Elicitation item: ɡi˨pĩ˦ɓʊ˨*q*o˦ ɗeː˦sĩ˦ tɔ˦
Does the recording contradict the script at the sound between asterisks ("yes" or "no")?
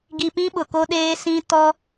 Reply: yes